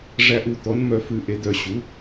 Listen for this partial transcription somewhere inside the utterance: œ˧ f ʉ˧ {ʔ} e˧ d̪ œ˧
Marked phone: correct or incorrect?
correct